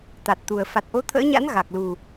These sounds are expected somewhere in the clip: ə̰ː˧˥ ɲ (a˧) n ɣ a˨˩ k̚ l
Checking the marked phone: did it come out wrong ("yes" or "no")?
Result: yes